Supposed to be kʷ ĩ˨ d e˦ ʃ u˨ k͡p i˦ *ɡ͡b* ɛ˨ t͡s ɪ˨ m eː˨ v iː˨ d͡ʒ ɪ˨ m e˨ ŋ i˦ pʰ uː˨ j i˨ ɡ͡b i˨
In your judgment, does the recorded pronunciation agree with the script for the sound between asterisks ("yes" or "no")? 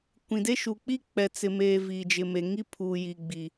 no